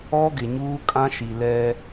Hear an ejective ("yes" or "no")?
yes